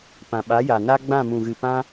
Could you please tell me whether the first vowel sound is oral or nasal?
nasal